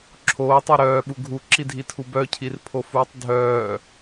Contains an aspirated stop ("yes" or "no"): yes